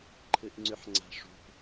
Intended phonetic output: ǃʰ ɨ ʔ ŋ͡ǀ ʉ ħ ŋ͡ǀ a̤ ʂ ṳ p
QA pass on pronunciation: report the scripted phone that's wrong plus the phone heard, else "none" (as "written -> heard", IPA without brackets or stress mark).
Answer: none